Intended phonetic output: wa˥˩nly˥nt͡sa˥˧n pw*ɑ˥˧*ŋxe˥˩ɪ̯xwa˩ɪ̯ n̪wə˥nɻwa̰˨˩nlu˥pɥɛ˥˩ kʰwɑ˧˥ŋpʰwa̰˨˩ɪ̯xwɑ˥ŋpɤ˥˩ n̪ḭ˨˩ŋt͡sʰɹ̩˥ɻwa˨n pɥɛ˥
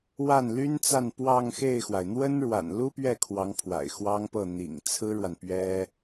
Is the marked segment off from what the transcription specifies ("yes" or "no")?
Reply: no